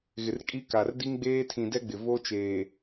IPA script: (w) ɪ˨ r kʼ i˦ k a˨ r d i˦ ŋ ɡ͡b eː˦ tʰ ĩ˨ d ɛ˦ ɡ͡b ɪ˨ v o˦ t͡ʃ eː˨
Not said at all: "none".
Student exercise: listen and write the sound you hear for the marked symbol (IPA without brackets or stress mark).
ɣ